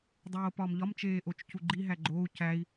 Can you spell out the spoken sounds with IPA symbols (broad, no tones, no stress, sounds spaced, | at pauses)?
dˤ oː p ɒ m ʎ ɒ m t͡ʃ eː ʔ o t͡ʃ c u ɡ͡ǃ i ɦ æ ɡ͡ǃ oː u̯ c æ i̯